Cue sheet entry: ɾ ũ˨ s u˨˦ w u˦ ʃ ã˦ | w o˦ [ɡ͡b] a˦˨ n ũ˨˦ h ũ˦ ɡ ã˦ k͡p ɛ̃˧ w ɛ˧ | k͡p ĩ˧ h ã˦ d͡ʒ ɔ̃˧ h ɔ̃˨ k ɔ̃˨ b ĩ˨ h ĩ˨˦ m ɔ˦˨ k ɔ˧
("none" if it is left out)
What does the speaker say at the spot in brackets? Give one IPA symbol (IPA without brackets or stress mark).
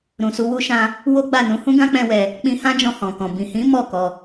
ɡ͡b